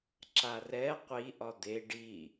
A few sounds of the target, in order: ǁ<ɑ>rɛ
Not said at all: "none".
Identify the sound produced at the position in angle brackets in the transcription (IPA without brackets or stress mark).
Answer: a